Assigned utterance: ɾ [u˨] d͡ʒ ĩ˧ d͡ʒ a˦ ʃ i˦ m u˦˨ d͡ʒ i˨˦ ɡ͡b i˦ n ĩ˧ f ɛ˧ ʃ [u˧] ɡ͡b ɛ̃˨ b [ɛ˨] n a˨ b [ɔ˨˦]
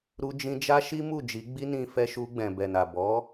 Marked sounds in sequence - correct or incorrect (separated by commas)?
incorrect, correct, correct, correct